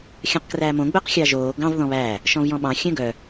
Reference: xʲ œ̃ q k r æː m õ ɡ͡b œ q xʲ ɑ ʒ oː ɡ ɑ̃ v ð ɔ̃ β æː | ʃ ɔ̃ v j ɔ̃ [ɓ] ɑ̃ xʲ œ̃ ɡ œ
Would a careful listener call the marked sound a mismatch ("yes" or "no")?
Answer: no